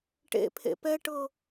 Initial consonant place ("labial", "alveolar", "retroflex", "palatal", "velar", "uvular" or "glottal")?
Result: retroflex